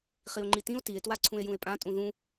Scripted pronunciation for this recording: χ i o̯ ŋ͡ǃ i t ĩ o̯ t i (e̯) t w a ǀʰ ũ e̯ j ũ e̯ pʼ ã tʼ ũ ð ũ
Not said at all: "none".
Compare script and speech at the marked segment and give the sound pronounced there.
e̯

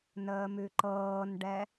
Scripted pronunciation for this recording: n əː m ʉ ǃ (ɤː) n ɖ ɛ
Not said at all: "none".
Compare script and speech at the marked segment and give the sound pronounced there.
ɤː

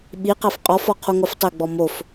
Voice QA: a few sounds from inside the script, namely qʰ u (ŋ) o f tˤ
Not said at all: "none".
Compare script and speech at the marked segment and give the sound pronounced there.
ŋ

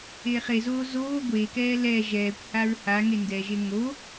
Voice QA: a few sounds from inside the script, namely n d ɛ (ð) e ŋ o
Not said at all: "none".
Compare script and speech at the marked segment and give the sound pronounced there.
ʒ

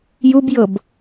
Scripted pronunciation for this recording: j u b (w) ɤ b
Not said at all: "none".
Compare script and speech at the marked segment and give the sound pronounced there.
j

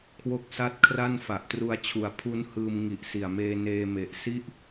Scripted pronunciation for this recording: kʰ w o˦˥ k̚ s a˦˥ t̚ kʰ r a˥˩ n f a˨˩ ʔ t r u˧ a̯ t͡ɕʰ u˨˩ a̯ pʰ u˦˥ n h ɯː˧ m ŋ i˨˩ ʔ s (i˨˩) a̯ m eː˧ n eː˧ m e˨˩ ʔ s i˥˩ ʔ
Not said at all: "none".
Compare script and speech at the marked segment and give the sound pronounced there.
i˨˩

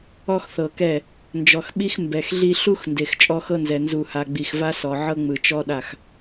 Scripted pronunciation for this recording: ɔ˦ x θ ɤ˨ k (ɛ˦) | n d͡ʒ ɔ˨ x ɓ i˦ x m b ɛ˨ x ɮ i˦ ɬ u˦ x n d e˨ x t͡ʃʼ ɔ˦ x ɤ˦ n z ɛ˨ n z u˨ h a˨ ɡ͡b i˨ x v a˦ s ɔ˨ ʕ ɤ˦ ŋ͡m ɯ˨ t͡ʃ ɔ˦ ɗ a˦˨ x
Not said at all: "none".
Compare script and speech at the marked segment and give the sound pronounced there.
ɛ˦˨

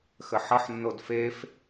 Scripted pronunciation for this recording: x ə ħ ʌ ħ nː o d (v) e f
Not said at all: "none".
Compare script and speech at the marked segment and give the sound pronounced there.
f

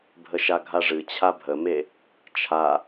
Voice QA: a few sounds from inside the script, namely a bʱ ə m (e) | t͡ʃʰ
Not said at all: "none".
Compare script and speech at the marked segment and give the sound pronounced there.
e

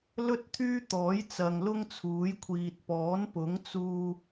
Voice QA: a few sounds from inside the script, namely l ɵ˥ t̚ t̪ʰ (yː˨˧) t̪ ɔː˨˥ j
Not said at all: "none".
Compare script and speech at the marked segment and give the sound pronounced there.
yː˥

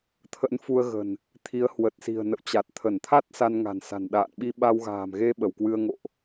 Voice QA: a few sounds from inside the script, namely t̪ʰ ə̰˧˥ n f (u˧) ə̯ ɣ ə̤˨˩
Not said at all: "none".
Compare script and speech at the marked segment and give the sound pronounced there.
u˧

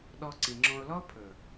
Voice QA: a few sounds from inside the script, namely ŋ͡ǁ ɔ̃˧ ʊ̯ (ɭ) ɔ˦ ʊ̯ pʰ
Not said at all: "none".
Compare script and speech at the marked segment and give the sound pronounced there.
l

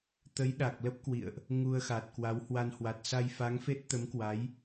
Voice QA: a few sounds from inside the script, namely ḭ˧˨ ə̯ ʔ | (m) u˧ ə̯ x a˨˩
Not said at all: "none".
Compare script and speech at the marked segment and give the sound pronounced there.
ŋ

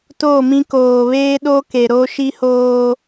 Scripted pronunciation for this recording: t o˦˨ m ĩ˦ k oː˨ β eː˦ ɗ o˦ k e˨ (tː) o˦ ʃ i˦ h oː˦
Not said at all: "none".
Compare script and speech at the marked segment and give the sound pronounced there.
ɾ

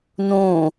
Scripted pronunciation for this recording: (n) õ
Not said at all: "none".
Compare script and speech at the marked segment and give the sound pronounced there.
n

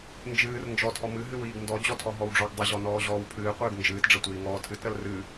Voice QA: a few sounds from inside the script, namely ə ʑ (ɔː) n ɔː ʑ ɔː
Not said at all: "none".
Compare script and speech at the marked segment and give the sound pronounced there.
ɔ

